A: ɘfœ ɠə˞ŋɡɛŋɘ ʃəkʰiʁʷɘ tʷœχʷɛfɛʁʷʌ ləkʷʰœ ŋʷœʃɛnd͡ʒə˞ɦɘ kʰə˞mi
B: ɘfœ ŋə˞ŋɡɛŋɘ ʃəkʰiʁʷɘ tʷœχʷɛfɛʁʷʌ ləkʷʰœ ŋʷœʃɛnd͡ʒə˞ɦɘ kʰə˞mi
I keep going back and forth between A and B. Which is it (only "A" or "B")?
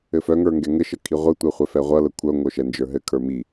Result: B